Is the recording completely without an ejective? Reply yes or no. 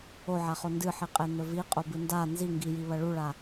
no